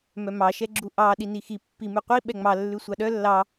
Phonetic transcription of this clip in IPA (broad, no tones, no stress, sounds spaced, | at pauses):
m œ m ɑ ʃ ɛ ɡ͡ǁ u ʔ ɑ ɗ i n i x i pː i m ʉ qʷ i ɓ ɛ ŋ͡m ɑ lː ʉ sʷ ɑ ɗ œ lː ɑ